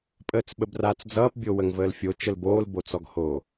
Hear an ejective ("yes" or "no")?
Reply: yes